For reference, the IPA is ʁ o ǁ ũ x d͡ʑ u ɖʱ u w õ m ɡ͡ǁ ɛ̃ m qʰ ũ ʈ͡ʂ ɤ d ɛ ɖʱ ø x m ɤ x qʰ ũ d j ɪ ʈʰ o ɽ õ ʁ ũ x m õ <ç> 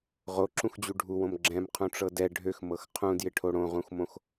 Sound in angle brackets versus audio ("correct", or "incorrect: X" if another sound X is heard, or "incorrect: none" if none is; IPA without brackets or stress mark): incorrect: x